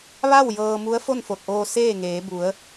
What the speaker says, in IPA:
ʋ a˥˨ w j ɤː˧ m u˧˥ ə̯ f o˥˨ n f o˧˩ t̚ ʔ oː˧ s eː˥˨ ŋ eː˩˧ b u˩˧ ə̯

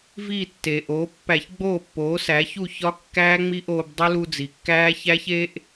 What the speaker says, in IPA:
v iː˥˩ tː e˩ ʔ oː˩˥ pː æ˧˩˧ ç ɡ͡b oː˥˩ pː oː˩˥ s æ˩˥ ç u˥˩ ç ɒ˦˥ kː æː˦˥ ŋ͡m i˦˥ ʔ oː˧ b dˤ u˦˥ l u˧ d͡z i˩ kː æː˦˥ ç æ˦˥ ç e˦˥ ʔ

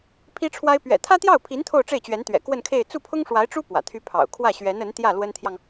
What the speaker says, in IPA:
pʰ i˥ ʈ͡ʂʰ w a˥ ɪ̯ p ɥ ɛ̰˨˩ t̪ʰ ä˥ t̪ j ɑ˥˩ ʊ̯ pʰ i˧˥ n t̪ʰ o˥˧ ʊ̯ ʈ͡ʂ e˥˩ ɪ̯ t͡ɕ ɥ ɛ˧˥ n t̪ ɥ ɛ̰˨˩ k w ə˥˧ n kʰ e˥˧ ɪ̯ t͡s u˥˩ pʰ ʊ˥ ŋ ʂ w a˧˥ ɪ̯ ʈ͡ʂ u˥ p w ä̰˨˩ t̪ʰ y˥ pʰ ɑ̰˨˩ ʊ̯ kʰ w ä˥˩ ɕ ɥ ɛ˧˥ n ə˧˥ n t̪ j ä˥˩ l w ə˥ n t̪ʰ j ɑ˨ ŋ

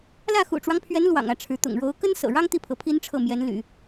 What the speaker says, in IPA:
l ä˥˩ x ṵ˨˩ ʈ͡ʂ w ɑ˦ ŋ pʰ ɥ ɛ˧˥ n l w ɑ̰˨˩ ŋ ä˥˩ ʈ͡ʂʰ ɻ̩˧˥ t̪ ʊ̰˨˩ ŋ ɻ o˧˥ ʊ̯ k ə˥ n s ɤ̰˨˩ ɻ ɑ˥ ŋ t̪ i˥˩ pʰ ɤ˧˥ pʰ i˥ n ʈ͡ʂʰ ɤ˥˩ m j ɛ˧˥ n l y̰˨˩˦

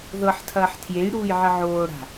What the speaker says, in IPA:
ð ɤ ħ tʰ ɐː ħ tʰ j e j ɽ uː j ʕ ə ʕ oː ɽ a̤

